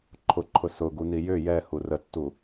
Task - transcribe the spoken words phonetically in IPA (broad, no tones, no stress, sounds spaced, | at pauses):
ǃʰ ʊ ǃʰ ʊ s ʊ ɡ u n i j ʏ j ɛ h u r ə tː u